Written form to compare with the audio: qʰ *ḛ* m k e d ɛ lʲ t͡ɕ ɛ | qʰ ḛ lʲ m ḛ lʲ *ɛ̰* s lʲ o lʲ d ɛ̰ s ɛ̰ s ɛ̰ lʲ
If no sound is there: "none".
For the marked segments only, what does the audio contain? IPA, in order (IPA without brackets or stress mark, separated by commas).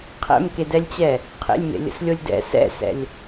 ɛ̰, ə̰